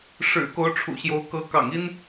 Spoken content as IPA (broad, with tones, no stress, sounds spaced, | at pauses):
ʂ ɻ̩˨˩ k o˧˥ ʊ̯ ʈ͡ʂʰ ṵ˨˩ ɕ j o˧˥ ʊ̯ k ɤ˧˥ k ɑ̰˨˩ ŋ i˥ n